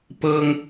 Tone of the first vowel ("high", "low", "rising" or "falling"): high